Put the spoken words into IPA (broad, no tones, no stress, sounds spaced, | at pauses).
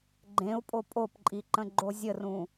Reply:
ɡ͡ǃ ẽ u̯ pʼ o pʼ o p ǃʼ i ǃ ə̃ ɡ͡ǃ o zʲ ə r ũ